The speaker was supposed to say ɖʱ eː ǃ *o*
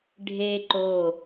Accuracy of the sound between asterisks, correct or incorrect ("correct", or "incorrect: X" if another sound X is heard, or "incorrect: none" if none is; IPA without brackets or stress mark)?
correct